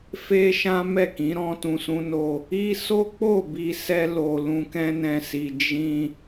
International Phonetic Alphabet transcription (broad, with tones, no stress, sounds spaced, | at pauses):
f e˦ ʃ ã˦ m ɛ˦˨ k ĩ˨˦ ɾ ɔ̃˧ t ũ˨ s ũ˧ n o˧ | i˦ s o˦ k͡p o˦˨ b i˧ s ɛ˦ l o˧ l ũ˧ k ɛ̃˦ n ɛ̃˧ s i˧ d͡ʒ ĩ˧